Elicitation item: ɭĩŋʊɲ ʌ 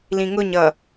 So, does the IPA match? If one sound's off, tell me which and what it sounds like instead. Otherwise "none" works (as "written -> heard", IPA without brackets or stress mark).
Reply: ɭ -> l